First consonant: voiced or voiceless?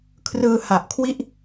voiceless